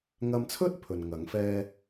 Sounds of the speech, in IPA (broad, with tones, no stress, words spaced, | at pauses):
ŋɐ˧mt͡sʰɵ˥t̚ pʰɵ˨nŋɐ˨˥ŋ fɛː˥